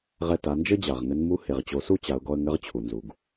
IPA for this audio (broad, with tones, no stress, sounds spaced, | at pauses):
ʁ ɛ˧ t a˩˧ n d͡ʒ ɘ˥ d͡ʑ a˩ ʁ ŋ ɘ˧˥ n m u˧˥ h e˩ ʁ t͡ɕ o˩˧ s u˥ t͡ɕ a˩˧ ʊ̯ ɡ ɔ˧ ə̯ ŋ ɘ˧˥ ʁ t͡ɕʰ u˩ n z u˩ ɡ